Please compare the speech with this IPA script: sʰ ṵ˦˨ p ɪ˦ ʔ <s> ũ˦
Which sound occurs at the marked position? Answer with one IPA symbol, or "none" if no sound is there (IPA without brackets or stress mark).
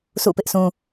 s